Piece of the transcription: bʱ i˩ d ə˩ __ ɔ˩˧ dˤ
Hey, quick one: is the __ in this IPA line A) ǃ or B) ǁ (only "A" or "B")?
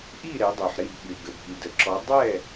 B